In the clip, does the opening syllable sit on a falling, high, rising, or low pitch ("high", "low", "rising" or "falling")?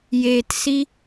low